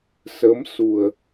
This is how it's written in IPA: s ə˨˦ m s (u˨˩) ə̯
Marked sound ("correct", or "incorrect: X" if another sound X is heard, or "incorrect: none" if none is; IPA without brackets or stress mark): correct